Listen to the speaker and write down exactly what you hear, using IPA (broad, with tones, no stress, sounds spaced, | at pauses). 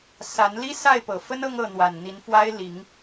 s a˨˦ n l i˦ s a˥˨ ɪ̯ p ɤ˨˩ f ə˦ n ɤ˦ ŋ ɤ˥˨ n̪ w a˨˩ n n̪ i˨˦ n f w a˦ ɪ̯ l i˨˦ ŋ